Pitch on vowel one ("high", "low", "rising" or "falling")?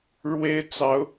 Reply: high